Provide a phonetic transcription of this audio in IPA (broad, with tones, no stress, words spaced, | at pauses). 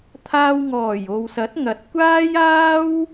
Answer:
t̪ʰaː˧wŋɔː˨˩j o˨wsɐ˨˥t̚ŋɐ˨t̚kʷaː˥j aː˥w